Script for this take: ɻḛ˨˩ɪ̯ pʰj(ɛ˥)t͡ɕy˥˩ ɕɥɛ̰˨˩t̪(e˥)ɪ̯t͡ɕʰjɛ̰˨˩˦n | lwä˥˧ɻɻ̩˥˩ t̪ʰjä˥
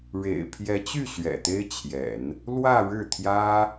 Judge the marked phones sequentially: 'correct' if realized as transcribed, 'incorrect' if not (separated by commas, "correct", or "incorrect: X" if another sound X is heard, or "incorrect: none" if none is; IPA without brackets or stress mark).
incorrect: ɛ˧˥, correct